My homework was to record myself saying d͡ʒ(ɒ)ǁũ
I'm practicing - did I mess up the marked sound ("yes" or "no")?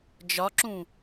no